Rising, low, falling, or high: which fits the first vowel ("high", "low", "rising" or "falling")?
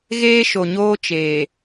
high